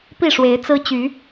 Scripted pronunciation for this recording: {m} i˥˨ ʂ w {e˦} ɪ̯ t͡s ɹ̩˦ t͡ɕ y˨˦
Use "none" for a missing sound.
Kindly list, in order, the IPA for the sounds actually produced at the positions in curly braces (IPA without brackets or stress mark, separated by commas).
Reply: p, e˨˦